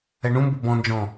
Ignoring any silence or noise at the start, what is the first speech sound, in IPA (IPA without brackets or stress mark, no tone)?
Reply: ɛ